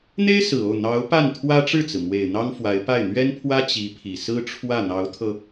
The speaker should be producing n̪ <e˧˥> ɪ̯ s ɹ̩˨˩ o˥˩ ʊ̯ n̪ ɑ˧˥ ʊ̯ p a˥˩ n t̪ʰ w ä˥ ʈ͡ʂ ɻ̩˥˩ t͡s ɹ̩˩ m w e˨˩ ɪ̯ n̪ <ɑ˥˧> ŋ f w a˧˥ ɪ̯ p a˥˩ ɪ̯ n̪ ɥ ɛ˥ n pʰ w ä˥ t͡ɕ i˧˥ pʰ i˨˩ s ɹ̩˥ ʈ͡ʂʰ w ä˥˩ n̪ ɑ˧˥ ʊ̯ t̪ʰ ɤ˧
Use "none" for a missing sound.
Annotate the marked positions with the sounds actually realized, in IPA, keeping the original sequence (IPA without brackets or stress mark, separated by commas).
e˥, ɑ˥